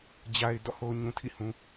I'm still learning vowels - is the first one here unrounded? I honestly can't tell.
yes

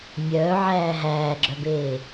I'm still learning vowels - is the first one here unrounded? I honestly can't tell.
no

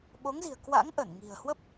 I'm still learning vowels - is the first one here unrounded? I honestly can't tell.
no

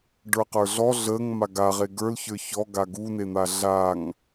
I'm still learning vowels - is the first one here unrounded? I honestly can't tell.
yes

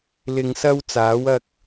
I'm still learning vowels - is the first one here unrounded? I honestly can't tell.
yes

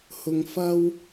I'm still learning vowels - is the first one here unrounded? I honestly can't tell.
no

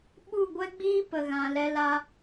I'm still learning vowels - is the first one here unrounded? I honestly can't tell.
no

